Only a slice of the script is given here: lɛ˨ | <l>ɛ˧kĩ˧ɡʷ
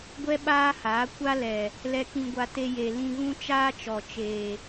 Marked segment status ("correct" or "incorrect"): correct